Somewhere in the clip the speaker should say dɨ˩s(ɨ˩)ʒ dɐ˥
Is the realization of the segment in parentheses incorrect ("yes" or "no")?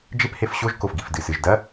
no